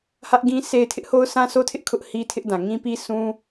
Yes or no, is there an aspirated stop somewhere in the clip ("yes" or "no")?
yes